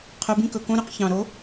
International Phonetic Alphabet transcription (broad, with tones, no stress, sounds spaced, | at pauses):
qʰ œ˨˦ b ĩ˦ k ɵ˨˩ k õ˦ ɾ ø˦ q ç ɑ̃˨˩ ɾ o˨˦